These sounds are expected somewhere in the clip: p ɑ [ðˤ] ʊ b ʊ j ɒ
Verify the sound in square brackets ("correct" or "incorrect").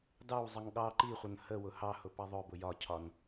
correct